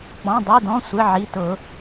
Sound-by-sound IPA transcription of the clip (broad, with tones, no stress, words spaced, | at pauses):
k͡pɔ̃˩˧˩ dˤi˩˧˩dɔ̃˩˧˩sʷɪ˩˧˩ ʕi˩˧˩tʊ˨˩˦